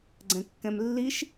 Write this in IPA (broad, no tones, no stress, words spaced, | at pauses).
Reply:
ɡ͡ǀɛ̃kːɛ̃mlːiʃ